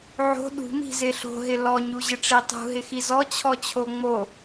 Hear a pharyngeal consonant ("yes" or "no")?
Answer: yes